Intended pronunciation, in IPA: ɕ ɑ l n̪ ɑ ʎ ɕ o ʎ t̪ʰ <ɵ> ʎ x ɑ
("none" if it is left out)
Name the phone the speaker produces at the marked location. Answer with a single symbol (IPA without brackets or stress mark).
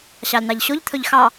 ɵ